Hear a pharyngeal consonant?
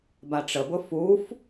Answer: no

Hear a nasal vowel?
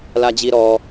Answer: no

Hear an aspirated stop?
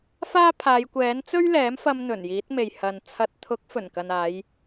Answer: yes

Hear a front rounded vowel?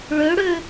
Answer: yes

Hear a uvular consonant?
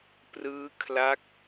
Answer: no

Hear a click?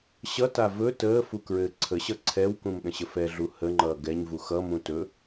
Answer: yes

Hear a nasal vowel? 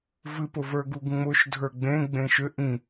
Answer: yes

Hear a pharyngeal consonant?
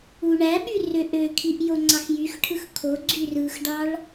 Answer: no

